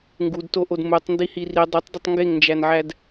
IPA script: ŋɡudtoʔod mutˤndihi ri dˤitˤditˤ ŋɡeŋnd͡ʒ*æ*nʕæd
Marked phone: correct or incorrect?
correct